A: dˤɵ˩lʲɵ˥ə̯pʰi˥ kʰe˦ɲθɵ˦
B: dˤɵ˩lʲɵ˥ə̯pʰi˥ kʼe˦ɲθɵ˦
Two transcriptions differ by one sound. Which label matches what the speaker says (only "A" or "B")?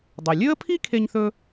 A